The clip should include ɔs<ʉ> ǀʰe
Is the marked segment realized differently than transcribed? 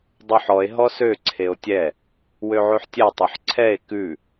yes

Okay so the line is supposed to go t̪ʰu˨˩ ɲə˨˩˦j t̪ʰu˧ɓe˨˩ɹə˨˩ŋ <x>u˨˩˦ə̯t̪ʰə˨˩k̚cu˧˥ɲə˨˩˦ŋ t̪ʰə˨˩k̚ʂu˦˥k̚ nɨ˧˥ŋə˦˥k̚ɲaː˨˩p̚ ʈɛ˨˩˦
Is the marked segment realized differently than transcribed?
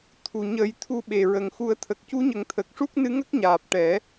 no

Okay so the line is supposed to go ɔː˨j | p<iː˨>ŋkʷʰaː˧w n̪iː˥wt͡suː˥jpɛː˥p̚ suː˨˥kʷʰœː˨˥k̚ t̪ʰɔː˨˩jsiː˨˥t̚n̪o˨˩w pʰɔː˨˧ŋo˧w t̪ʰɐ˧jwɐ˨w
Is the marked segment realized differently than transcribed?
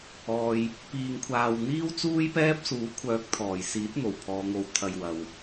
yes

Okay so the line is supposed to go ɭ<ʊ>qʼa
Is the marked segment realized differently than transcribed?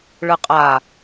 yes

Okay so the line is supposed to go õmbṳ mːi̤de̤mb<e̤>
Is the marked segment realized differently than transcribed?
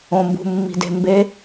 yes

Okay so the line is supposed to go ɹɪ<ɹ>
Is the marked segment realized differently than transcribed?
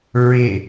yes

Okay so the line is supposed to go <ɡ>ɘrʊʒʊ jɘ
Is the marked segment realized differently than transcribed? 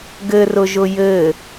no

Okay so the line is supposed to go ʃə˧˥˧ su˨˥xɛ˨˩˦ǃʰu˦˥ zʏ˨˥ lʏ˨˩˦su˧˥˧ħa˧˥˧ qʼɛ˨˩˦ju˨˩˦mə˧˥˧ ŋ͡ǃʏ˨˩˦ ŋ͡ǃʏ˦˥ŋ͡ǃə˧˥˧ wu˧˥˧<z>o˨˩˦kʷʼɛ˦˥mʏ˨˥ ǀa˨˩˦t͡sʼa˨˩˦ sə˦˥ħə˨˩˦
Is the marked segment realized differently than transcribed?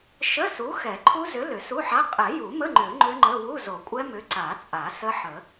no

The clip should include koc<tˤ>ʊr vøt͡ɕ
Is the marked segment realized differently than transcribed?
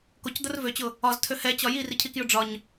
yes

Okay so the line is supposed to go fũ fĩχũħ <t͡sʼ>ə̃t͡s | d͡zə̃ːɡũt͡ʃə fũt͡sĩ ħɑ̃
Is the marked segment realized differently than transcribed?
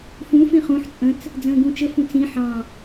no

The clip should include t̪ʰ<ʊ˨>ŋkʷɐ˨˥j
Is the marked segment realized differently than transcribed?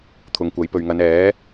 no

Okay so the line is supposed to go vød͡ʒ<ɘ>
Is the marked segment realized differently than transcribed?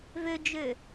yes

